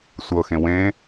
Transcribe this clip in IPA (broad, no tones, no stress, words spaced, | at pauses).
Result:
sʷɤxẽ wẽ